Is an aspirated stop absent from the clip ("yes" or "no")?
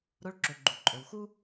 yes